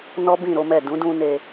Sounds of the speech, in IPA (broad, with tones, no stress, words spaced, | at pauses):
nɔ˦bĩ˦˨ɾo˨˦mɛ˦˨ dũ˨˦dũ˧ne˧